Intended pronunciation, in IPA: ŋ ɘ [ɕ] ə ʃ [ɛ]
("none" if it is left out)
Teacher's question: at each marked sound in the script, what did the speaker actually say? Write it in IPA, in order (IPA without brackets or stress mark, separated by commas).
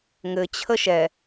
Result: t͡ɕʰ, ɛ